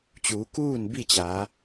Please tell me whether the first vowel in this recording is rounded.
yes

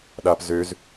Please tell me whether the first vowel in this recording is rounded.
no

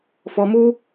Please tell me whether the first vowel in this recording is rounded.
yes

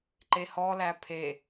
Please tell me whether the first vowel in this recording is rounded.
no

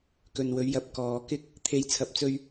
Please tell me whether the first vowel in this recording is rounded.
yes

